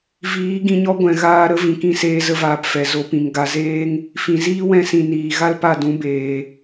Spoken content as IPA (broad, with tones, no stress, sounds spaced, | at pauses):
v iː˨˦ ɡ ĩ˧ ɲ ɔ˦ ɡʷ ɛ̃˨ ɣ aː˧ ɾ ə˦ v ĩ˨ k ĩ˧ s eː˧ z ə˧ v aː˨ p f ɛ˨ z o˨˦ p ĩ˨ ŋ ɡ a˧ z eː˦ ŋ | f ĩ˨ z iː˦ w ɛ̃˧ s ĩ˨ n iː˨ ɣ a˦ l p a˦˨ d ũ˨˦ b eː˨